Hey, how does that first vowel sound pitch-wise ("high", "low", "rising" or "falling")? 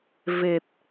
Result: low